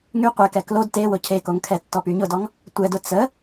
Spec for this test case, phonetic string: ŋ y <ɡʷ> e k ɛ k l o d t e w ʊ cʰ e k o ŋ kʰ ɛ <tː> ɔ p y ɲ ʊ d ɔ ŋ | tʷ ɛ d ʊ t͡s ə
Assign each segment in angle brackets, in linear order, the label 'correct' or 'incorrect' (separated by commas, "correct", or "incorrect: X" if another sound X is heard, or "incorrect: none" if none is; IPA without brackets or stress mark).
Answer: incorrect: qʷ, correct